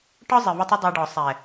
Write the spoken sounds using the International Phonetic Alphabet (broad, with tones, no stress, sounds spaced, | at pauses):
ʈ ɒ˦ zˤ ɪ˨ v ʊ˧ tˤ ʊ˦ dˤ æ˧ ɖ ɔ˨ sˤ ɛ˨